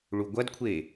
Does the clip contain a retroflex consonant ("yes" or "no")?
yes